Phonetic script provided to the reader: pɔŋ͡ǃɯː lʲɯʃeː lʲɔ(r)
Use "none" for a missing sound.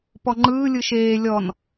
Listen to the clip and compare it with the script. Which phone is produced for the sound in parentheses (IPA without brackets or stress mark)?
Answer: n